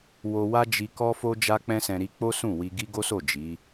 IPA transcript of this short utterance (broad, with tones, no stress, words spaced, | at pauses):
wo˧wa˦ d͡ʒi˧kɔ˦fo˦ d͡ʒa˦k͡pɛ̃˦sɛ̃˧ ɾi˧k͡po˦ sũ˦˨wi˧ɡi˦ ɡo˦so˦˨ d͡ʒi˨˦